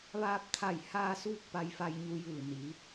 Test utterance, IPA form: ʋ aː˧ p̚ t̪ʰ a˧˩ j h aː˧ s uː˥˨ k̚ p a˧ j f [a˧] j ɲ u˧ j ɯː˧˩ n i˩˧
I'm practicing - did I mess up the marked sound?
no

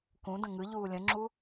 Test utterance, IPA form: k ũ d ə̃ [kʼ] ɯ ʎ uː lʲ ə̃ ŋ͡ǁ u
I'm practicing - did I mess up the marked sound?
yes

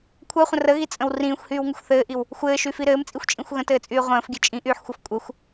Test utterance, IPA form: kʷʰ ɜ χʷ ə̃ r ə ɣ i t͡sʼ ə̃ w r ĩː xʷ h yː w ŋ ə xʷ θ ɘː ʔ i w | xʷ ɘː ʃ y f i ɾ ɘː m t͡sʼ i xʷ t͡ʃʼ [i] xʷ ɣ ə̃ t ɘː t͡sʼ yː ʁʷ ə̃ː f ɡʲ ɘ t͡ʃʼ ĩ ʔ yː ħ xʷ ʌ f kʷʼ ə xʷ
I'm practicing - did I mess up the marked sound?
yes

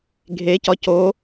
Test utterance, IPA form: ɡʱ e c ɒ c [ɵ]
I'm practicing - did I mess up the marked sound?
yes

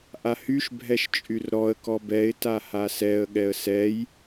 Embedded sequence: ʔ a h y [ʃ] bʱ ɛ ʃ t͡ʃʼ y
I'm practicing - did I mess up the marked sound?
no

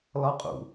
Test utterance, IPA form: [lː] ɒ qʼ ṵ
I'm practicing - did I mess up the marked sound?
yes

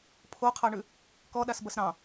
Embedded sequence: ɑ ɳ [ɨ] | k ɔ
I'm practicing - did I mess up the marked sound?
yes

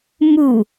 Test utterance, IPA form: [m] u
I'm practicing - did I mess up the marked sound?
no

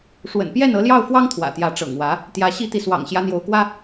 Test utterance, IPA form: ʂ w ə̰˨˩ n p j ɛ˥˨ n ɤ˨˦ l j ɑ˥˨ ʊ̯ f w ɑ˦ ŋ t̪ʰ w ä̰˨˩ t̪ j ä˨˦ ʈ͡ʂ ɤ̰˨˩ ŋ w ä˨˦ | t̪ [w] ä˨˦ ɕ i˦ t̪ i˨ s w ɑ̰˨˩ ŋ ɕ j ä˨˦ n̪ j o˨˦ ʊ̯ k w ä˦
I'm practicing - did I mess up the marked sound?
yes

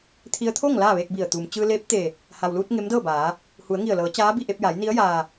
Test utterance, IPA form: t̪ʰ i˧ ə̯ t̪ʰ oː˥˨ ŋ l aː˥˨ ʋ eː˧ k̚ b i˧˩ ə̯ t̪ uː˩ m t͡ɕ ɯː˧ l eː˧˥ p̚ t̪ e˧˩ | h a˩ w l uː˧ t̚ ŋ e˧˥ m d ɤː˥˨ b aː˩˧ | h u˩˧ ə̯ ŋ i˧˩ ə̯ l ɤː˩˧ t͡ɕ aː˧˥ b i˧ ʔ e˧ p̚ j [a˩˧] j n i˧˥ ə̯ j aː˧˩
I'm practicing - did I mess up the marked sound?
no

